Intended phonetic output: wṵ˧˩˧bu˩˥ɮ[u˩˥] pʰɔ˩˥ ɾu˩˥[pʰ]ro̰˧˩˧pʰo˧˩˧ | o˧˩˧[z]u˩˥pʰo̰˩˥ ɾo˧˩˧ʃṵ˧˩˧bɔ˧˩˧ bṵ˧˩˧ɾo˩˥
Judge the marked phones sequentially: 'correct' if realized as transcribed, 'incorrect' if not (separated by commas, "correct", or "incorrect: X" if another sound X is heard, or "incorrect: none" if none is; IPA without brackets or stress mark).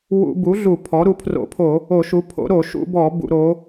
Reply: incorrect: u˧˩˧, correct, incorrect: ʃ